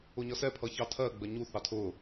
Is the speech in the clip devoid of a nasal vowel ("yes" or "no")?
yes